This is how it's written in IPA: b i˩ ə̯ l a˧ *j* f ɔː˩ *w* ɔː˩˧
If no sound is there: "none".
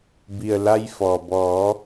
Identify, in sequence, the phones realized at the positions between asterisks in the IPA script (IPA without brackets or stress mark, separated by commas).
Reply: j, b